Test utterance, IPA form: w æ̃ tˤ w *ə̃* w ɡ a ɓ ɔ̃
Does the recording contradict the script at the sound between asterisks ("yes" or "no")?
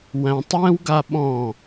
yes